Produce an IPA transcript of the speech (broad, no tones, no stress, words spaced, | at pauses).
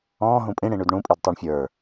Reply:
ɔ̃ː ɦũpʼĩ ɽĩɳʉdɳũ pʼidtˤuɳfʲə˞